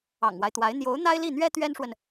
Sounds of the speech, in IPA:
ɑ̰˨˩ ŋ w a˦ ɪ̯ t̪ w a˧˥ ɪ̯ n̪ j o˧˥ ʊ̯ n̪ a˥ ɪ̯ l i˥˩ n̪ ɥ ɛ˥ t̪ ɥ ɛ˥ n ʂ w ə˨ n

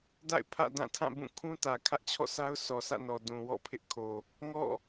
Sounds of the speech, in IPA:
d a̰˦˨ ɪ̯ pʰ ä̰˦˨ d ã˦˨ tʰ ã˦˨ b ũ˦˨ kʰ ũ˦ t ä˨ kʰ ä˦ ʔ t͡ɕʰ ɔ̰˦˨ s a˦ ʊ̯ sʰ ɔ˨ sʰ ä̰˦˨ n ɔ˨ d ũ˨ w ɔ̰˦˨ pʰ ɪ˦ ʔ kʰ o˨ | ŋ ɔ̰˦˨

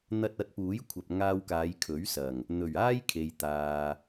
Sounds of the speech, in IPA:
n̪ ɐ˧ t̚ ɐ˨˥ t̚ p uː˨˥ j kʷʰ ɐ˨ p̚ ŋ aː˧ w k aː˨˧ j kʰ ɵ˨˥ ɥ s ɐ˨˩ ŋ | n̪ ɵ˨˩ ɥ aː˥ j kʰ e˧ j t̪ aː˧

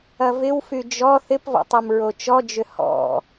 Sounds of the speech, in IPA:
ɐ v ɪ w f y d͡ʒ ɔ θ ɪ p v ɔ̰ tˤ ɔ m ɹ o t͡ʃ ɔ d͡ʒ ʏ h ɔ̰

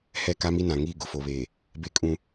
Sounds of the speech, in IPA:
h ɛ˦˨ k a˦ m i˦ n ã˨ ŋ iː˦˨ ɡ ʊ˨ f o˨ β eː˨ | b e˦ kʼ ũ˦

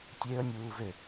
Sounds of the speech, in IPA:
tʲ e ə̯ nʲ uː v ø

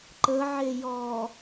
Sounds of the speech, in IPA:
ǃ ə ʕ e j ɔ

